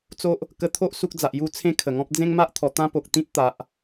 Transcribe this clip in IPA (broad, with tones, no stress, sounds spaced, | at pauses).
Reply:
t͡s o˦ ʔ | k ə˦ t̪ʰ o˦ ʔ s u˦ k̚ d͡z a˨ ʔ j u˥˧ t͡sʰ ẽ˦ kʰ ə˨˩ ŋ ɔ̃˦ p̚ d͡z ẽ˦ ŋ m a˦ ʔ t̪ʰ ɔ˨˩ t̪ ã˦ p o˨ k̚ t̪ ĩ˦ t̚ t̪ a˨ ʔ